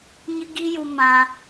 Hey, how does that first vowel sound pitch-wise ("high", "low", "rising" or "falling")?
high